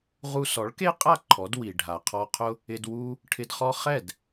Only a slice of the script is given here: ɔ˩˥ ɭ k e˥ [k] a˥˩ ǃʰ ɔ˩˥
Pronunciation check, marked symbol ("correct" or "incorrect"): incorrect